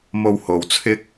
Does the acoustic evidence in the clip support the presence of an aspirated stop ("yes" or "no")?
yes